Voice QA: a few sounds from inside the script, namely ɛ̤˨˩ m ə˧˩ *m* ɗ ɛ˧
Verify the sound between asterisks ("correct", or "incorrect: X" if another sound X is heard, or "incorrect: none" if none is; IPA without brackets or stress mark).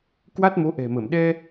correct